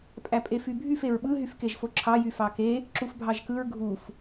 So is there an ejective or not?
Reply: yes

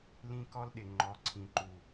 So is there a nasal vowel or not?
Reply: yes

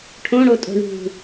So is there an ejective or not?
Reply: yes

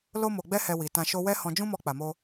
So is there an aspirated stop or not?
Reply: no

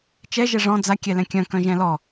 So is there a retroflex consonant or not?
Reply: yes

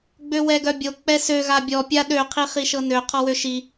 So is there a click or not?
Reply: no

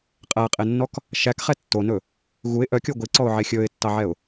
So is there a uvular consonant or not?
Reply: yes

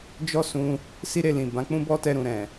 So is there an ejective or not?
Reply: no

